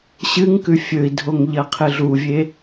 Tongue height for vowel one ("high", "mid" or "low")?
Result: high